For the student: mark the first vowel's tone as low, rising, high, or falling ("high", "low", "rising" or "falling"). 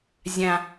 low